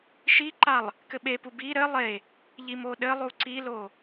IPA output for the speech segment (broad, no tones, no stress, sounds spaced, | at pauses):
ʃ i ǃ a lˠ | k ɘ ɓ e p u b i ɾ ɘ lˠ e | ʎ i m o ɗ ɘ lˠ u ǀ i l o